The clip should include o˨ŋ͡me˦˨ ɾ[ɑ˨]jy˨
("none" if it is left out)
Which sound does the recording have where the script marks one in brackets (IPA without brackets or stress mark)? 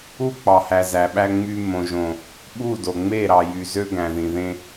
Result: ɑ˨